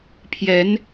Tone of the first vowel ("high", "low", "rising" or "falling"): rising